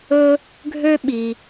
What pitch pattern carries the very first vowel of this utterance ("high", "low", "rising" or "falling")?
high